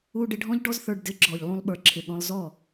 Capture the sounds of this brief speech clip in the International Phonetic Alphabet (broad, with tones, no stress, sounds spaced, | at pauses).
u˧ ɖ ɪ˧ ɖʱ ɔ̃˦ ʎ ɖ ɔ˦ z θ ə˞˧ ɖ d ɪ˨˦ ɡ͡ǁ ɔ˨ ʎ lˠ ũ˧ lˠ ɓ ə˞˨ ǁʰ ɪ˨ ɠ ɔ̃˧ lˠ z ɔ˦˨